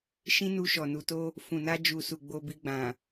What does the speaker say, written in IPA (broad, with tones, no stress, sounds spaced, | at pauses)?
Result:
ʃ ĩ˦ n u˧ ʃ ɔ˨ n u˨ t o˧ | f ũ˨ n a˧ d͡ʒ u˨ s u˨ ɡ͡b o˧ b i˧ ɡ͡b ã˨